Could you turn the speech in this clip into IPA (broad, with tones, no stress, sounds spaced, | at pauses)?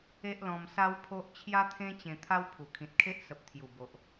e˦ ʔ l ɔ̃˧ m s a˦ w pʰ o˦ ʔ t͡ɕʰ j a˦ t̪ʰ ẽ˦ t͡ɕ ẽ˧ t̪ʰ a˦ w pʰ u˨˩ kʰ ĩ˨ t̚ kʰ e˦ ʔ s ə˨ p̚ t̪ʰ j u˨˩ b o˨ ʔ